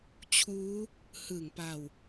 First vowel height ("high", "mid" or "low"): high